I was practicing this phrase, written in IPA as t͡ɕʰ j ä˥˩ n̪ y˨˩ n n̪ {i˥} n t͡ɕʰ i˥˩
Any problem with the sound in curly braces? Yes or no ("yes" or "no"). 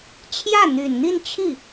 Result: yes